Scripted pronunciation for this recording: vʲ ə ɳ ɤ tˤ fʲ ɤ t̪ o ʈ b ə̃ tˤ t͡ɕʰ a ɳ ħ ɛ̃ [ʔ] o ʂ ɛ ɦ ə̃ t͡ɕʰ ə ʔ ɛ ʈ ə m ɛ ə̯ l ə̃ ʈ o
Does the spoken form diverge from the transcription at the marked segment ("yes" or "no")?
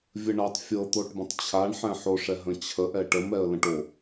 yes